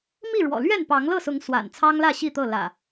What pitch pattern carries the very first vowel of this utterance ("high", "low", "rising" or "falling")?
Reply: falling